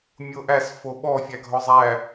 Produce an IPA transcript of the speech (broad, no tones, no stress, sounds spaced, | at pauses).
mʲ o ʔ æ s f o ɓ ɔ fʲ æ ɡʱ ɔ zˤ æ